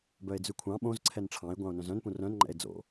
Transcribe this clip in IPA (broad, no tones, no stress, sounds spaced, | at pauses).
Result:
b œ e̯ d͡z ʉ kʷʰ ɑ̃ ɓ õ z ǀʰ ɛ n ʈ͡ʂʰ ɑ̃ e̯ ɡʷ ɑ̃ o̯ n œ̃ z œ̃ n p ũ r œ̃ n ŋ͡ǃ ɛ̰ e̯ d͡z o̰